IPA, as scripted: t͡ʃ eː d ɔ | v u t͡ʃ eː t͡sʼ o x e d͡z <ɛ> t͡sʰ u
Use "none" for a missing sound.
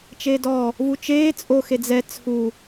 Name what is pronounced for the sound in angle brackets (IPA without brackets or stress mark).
ɛ